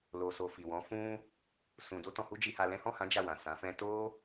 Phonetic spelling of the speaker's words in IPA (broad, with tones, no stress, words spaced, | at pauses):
lo˨so˨ fi˨wɔ̃˨˦ fũ˦ | sũ˧ do˦tɔ̃˧hu˦ d͡ʒi˧ha˧lɛ̃˦ hɔ̃˦˨hã˨˦ d͡ʒa˦˨wã˨sã˨˦ fɛ̃˧to˦